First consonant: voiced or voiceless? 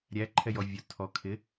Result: voiced